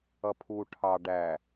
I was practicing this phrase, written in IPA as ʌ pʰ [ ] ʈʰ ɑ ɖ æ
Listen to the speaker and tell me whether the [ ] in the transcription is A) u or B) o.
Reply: A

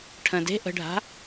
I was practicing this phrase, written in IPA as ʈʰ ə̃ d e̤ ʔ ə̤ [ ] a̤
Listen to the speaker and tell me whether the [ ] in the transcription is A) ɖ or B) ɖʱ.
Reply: B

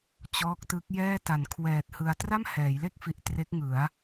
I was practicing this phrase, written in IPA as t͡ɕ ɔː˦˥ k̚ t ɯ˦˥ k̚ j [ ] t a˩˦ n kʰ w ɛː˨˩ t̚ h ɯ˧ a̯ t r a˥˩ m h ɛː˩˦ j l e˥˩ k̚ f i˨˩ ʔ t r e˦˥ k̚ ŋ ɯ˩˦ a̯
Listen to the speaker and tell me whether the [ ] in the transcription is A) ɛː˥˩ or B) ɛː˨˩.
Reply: A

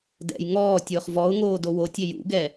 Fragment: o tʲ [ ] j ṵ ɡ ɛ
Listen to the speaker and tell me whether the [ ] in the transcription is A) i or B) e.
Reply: B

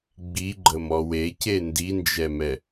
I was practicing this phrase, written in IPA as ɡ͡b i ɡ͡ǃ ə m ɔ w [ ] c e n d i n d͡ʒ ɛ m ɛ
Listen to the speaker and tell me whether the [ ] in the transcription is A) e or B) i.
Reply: A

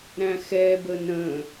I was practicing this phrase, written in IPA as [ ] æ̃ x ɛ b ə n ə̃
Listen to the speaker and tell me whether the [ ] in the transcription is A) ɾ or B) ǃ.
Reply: A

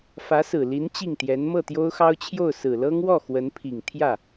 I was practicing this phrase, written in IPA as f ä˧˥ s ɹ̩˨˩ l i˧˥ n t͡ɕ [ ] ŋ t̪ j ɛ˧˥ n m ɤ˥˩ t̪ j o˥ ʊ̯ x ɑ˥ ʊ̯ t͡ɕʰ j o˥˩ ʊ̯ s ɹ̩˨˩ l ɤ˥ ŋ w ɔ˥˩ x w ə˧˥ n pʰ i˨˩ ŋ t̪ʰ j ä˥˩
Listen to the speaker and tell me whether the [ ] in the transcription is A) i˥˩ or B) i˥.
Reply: A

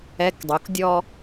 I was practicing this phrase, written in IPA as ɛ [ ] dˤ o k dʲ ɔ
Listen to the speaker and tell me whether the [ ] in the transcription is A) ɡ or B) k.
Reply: B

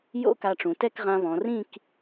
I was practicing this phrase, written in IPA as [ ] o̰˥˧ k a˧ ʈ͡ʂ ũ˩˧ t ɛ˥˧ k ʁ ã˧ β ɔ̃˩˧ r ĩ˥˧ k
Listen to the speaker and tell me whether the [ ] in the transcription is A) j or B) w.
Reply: A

